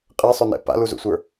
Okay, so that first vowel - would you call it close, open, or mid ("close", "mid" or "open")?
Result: mid